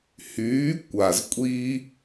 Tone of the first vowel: rising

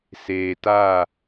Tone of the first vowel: low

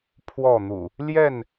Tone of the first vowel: falling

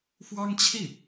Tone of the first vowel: high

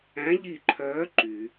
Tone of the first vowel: rising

